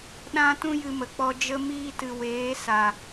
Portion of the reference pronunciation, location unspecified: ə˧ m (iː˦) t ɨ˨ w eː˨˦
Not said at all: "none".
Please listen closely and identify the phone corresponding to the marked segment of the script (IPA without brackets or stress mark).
iː˧